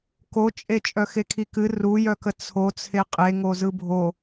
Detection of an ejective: present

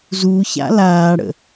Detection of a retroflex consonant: present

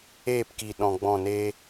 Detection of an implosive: present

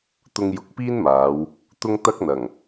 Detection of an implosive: absent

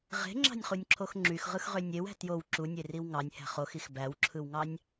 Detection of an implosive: absent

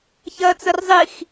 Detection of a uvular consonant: absent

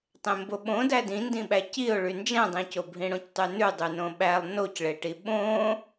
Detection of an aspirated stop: absent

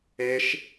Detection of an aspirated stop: absent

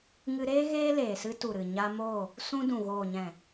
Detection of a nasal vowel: present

